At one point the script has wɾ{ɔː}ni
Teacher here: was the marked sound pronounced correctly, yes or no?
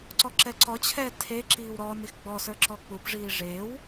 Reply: yes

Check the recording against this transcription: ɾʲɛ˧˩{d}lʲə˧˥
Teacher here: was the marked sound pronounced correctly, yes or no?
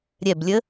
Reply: no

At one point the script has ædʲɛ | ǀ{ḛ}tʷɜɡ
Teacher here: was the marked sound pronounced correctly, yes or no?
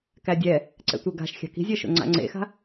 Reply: no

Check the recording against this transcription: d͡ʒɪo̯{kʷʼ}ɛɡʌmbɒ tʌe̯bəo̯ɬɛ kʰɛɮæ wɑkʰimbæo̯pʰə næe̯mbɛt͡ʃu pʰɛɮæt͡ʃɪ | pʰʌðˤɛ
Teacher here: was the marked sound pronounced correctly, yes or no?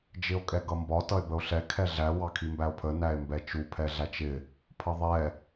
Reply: no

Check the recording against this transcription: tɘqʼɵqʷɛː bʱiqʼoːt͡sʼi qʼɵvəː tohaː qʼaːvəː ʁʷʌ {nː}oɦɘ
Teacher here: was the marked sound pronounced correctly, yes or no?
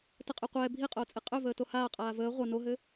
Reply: no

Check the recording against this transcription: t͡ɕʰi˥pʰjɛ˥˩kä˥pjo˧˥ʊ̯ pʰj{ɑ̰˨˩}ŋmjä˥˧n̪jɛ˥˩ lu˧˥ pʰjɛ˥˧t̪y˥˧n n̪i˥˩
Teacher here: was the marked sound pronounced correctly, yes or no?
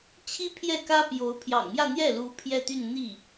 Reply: yes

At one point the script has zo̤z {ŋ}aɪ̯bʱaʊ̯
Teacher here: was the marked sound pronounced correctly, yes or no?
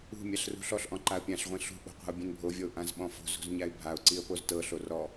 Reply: no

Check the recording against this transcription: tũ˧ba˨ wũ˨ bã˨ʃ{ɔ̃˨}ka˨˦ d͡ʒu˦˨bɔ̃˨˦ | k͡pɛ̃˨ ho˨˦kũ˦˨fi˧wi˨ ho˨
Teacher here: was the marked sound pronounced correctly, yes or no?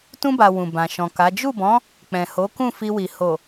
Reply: yes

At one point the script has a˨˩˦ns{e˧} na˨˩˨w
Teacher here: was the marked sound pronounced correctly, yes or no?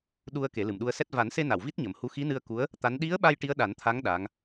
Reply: yes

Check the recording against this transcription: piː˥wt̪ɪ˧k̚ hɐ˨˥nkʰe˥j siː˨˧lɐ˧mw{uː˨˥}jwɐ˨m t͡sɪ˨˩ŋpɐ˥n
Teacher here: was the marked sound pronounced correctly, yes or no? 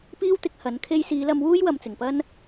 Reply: no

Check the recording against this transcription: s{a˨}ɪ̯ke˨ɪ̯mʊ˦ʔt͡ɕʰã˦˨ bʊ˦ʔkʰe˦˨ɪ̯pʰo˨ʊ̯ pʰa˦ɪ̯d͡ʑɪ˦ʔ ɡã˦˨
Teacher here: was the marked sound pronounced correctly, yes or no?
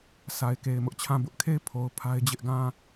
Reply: yes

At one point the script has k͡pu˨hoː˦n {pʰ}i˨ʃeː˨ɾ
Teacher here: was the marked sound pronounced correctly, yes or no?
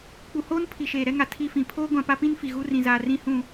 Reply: yes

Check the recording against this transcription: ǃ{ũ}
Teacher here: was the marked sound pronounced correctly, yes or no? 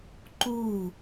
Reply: no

